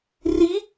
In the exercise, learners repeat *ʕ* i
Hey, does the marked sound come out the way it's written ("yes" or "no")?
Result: no